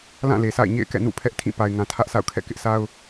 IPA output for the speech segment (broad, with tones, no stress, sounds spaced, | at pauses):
l ã˦˨ l e˨ sʰ a̰˦˨ ɪ̯ ɲ ḛ˦˨ ɪ̯ k ɛ̰˦˨ n ṵ˦˨ pʰ ɛ˦ ʔ tʰ ĩ˦˨ p a˨ ɪ̯ ŋ ã˨ tʰ ä˦ ʔ s a̰˦˨ ʊ̯ kʰ ɛ̰˦˨ k ɪ˦ ʔ sʰ a˦ ʊ̯